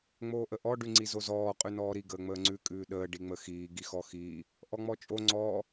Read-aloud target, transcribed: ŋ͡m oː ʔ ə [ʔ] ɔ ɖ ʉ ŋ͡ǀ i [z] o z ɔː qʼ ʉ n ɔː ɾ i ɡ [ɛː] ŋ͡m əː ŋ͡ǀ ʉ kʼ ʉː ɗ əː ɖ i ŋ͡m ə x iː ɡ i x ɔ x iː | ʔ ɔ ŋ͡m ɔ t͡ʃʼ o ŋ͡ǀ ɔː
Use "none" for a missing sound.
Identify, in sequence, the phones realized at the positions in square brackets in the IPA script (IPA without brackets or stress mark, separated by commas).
ʔ, z, əː